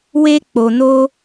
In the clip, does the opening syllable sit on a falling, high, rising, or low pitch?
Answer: high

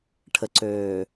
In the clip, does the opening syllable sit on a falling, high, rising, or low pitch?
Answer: low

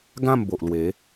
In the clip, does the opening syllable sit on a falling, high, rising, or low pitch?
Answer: falling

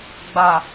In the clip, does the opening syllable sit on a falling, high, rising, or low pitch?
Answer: low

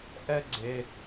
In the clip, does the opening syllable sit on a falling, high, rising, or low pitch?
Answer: high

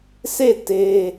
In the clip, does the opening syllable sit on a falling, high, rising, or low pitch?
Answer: falling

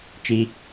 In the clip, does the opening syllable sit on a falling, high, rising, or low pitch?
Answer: low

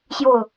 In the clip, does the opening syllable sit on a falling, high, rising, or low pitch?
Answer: falling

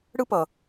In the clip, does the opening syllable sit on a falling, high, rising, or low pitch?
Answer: high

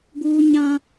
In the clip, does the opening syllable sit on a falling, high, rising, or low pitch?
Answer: high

